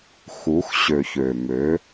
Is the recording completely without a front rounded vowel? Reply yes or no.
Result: no